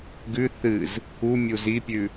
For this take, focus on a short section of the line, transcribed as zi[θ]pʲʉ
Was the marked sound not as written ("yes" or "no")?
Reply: yes